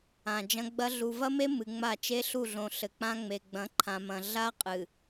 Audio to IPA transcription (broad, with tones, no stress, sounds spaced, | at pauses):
ã˨ d͡ʒ ɐ̃˦ ɡ͡b ɐ˦ ɮ u˨ v ɐ˦ m e˦ m ɨ˨ ŋ͡m a˦˨ t͡ʃ e˦ ɬ u˦˨ ɮ õ˨ ɬ ɘ˨ k͡p ã˦ ŋ͡m e˨ ɡ͡b ɐ̃˨˦ ǃʰ ã˨ m ɐ̃˨ ɮ a˦ qʼ ɨ˨